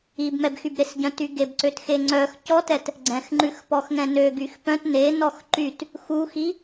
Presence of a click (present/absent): present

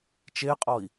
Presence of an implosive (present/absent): absent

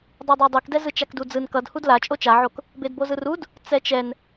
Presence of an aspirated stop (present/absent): absent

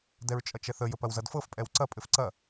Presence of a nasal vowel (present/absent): absent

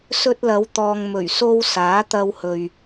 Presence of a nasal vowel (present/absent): absent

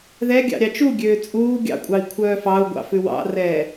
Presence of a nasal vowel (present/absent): absent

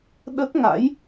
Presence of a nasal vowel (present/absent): absent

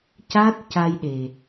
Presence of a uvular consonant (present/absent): absent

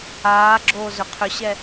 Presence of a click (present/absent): present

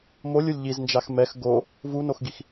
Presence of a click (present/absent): absent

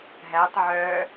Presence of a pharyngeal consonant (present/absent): present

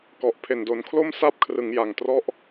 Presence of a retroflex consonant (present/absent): absent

